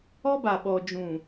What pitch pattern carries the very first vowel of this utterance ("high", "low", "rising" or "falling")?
high